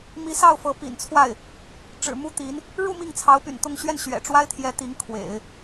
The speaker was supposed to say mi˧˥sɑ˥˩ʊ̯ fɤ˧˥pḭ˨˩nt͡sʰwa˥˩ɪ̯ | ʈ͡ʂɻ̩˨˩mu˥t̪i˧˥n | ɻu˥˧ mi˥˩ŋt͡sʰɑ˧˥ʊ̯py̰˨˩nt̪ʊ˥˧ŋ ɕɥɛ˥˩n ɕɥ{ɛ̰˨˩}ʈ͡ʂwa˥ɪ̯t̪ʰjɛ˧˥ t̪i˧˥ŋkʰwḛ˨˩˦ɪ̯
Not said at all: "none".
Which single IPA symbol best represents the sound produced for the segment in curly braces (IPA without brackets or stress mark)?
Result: ɛ̰˨˩